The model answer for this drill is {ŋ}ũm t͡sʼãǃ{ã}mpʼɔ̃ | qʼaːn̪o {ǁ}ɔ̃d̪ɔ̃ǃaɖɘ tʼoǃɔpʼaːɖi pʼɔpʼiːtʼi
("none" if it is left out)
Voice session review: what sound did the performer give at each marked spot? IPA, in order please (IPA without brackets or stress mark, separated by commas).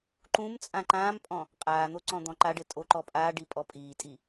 ǃ, ãː, ǀ